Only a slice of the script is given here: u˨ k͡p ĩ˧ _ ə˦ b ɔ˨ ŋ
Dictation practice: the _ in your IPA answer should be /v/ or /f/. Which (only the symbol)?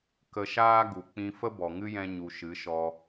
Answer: f